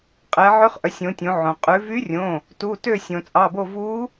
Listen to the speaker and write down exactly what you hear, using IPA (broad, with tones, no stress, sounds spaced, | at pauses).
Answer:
qʼ ɛ˩˧ ʕ ø˧˥ χ ʔ œ˩˧ sʲ õ˩˧ tʲ õ˩˧ ʕ õ˩ qʼ ʉ˩˧ v y˧˥ rʲ õ˩˧˩ | t u˩˧˩ t ø˦˨ sʲ õ˩ t͡sʼ ɑ˩˧˩ b o˦˨ v u˧˥